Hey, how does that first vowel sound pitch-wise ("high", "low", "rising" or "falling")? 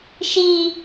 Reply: high